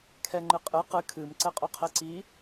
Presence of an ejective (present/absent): present